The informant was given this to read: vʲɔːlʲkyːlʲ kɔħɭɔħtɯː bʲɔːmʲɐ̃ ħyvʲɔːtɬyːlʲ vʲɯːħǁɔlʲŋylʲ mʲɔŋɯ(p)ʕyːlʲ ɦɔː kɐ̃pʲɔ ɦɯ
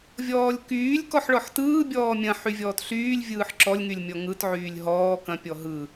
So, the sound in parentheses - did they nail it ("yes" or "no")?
no